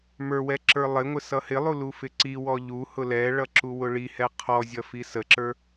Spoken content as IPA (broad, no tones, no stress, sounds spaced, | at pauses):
m ə˞ w ɛ ǁ ə˞ lˠ ɪ ŋʷ ɪ s ʌ h ɪ lˠ u l u f ɪ ǀ i w ɔ ʎ u h ʊ l ɛ ɭ ʌ ǁ u w ʊ ɭ i h ɛ qʰ ɔ zʲ ʌ f i s ə ǁ ə˞